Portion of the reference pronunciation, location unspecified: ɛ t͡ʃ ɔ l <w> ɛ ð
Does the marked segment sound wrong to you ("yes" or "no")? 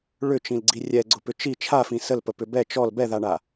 yes